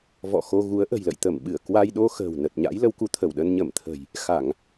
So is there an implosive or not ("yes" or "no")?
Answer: yes